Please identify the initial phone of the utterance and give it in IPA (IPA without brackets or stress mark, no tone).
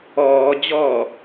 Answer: ɔː